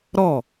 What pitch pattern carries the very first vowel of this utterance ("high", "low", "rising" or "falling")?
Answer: falling